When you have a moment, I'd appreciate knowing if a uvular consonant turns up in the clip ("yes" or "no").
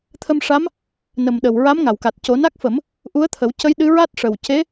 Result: no